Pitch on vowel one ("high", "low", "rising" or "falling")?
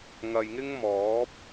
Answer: low